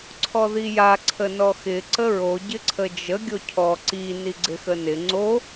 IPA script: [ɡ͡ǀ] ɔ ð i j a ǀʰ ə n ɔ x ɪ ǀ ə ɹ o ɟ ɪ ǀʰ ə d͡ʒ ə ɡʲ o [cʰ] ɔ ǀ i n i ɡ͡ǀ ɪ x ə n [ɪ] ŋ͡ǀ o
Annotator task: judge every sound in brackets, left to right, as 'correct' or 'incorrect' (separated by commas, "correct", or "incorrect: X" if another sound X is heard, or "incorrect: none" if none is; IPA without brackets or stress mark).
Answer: incorrect: ǀʰ, correct, correct